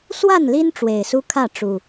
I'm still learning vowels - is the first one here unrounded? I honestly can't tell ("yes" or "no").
yes